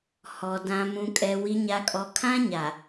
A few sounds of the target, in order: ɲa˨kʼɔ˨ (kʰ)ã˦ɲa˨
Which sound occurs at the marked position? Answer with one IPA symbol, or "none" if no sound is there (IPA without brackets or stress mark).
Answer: kʰ